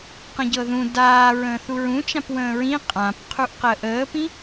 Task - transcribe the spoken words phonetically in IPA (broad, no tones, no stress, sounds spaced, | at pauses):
q ə̃ ɟ ɤ ð ũ d aː ɹ ə̃ː θ u ɹ ũ t͡ʃ ã p w ə̃ː ɹ ĩ qʼ ã p qʰ u ʔ q əː ʔ əː p ĩ